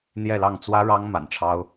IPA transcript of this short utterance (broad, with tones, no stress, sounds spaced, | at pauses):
n̪ j ɛ˥˧ l ɑ˥˩ ŋ t͡s w ä˥ ɻ ɑ˥ ŋ m a̰˨˩ n ʈ͡ʂʰ ɑ˥ ʊ̯